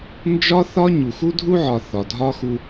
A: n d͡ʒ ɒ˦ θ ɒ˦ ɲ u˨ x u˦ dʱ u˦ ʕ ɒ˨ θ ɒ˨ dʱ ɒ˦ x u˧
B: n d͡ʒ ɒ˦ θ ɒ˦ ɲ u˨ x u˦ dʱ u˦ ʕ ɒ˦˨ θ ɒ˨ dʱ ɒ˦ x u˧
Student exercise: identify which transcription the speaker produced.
A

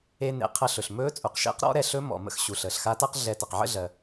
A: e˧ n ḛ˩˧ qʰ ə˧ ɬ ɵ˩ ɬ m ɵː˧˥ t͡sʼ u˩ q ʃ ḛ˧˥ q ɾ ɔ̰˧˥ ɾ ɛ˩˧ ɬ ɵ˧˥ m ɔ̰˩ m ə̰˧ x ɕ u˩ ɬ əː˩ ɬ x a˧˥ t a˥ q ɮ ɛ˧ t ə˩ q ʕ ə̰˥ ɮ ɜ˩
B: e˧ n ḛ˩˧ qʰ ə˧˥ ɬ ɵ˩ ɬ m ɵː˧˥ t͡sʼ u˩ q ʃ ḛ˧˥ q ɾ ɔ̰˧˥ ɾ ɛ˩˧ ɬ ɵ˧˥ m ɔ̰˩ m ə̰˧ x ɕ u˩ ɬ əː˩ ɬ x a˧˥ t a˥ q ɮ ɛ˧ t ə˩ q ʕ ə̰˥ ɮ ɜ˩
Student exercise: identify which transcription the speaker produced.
A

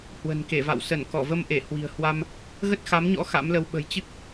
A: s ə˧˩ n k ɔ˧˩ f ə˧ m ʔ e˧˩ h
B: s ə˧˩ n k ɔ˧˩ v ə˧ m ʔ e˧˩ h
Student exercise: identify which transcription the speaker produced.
B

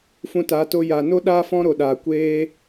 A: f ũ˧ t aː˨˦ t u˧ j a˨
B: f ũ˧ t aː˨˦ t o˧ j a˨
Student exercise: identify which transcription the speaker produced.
B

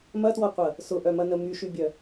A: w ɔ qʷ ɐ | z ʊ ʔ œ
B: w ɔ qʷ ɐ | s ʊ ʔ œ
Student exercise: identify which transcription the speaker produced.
B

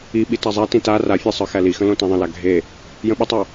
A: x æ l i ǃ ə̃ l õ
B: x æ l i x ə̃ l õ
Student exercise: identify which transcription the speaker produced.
B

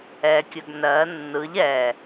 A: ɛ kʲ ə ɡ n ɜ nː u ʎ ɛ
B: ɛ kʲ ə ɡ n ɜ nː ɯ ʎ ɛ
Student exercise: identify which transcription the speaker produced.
B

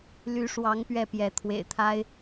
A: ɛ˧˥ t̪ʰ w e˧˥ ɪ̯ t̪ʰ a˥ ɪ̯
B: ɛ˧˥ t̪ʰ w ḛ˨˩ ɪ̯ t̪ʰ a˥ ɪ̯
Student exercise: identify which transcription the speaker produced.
B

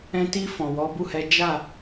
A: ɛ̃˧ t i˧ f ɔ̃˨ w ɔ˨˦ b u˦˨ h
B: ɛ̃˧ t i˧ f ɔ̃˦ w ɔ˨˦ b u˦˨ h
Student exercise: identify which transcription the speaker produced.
A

